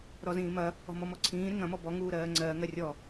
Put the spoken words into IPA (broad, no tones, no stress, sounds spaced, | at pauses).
ɾ ɔ z ĩː m ɐ | ɔ̤ m ɔ m ɔ ǀʰ ĩː ɾ ɪ ŋ ɐ̃ m ɔ b ɔ ŋ uː ɾ ɜː ŋ͡ǀ ɜː ŋ ɜ rʲ ɔ